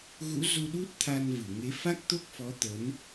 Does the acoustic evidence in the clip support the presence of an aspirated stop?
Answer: yes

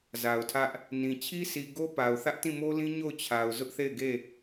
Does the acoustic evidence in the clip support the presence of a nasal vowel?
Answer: yes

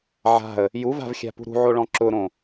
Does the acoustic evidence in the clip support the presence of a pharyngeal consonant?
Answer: yes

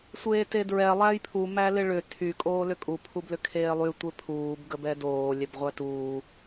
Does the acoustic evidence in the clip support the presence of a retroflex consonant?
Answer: yes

